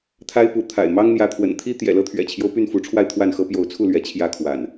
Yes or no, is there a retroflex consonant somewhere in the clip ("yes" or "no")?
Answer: yes